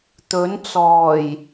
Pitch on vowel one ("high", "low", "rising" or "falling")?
rising